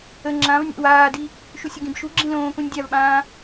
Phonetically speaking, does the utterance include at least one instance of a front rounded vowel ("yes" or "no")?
no